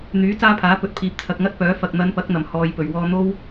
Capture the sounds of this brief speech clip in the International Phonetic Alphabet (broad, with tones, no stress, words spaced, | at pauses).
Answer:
n̪yː˨˥ t͡saː˥pʰaː˨˥pɵ˨˥t̚ pʰiː˨p̚ t͡sʰɐ˨k̚ŋɐ˥t̚pœː˨˥ fɐ˨k̚n̪ɐ˨˧npɐ˨˥k̚ n̪ɐ˨˩mhɔː˨jpɵ˨˩ɥwɔː˧ n̪o˥w